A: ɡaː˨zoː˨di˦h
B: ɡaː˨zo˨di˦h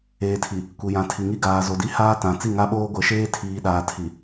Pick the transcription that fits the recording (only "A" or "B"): B